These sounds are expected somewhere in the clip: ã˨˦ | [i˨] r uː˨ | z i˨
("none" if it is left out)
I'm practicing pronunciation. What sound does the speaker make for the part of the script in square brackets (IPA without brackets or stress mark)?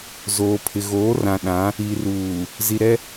i˨